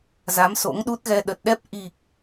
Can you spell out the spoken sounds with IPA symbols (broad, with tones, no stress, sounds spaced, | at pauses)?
z a˨˦ m s o̰˧˥ ŋ ɗ u˦˥ t̚ ɣ ɛ˧ ɗ ə˨˩ t̚ ɗ ɛ˦˥ p̚ ʔ i˨˩ k̚